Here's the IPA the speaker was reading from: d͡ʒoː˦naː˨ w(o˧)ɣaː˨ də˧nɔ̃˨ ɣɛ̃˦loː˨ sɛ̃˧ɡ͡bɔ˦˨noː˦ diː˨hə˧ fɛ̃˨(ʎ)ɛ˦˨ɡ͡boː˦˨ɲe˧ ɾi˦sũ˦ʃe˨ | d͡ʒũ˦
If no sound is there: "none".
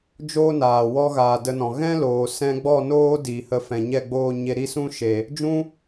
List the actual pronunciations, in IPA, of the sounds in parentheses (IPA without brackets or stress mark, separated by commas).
ɔ˧, ɲ